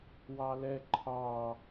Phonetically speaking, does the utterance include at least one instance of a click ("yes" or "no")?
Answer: yes